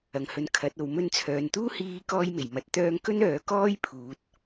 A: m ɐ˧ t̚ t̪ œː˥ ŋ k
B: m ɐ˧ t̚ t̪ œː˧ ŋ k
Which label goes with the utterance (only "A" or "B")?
A